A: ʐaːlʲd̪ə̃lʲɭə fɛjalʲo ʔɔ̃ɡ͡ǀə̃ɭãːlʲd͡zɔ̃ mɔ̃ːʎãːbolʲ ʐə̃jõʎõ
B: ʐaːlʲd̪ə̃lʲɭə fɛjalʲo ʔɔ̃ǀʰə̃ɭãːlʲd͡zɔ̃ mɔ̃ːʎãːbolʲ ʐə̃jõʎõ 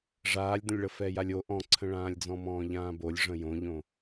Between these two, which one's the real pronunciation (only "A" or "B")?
B